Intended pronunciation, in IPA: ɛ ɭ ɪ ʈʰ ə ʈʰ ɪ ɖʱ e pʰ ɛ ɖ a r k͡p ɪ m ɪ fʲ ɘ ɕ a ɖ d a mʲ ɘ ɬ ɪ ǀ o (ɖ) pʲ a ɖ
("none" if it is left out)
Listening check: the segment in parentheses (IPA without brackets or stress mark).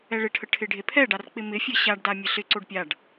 ɖ